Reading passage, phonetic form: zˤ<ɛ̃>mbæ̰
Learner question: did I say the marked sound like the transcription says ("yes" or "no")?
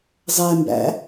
no